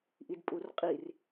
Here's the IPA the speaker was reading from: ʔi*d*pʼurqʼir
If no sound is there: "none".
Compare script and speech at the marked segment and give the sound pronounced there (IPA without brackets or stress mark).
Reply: d